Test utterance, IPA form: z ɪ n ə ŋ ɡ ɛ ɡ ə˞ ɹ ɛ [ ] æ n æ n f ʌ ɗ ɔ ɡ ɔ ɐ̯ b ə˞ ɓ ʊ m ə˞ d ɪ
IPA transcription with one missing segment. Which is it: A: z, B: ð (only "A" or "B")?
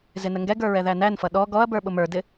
B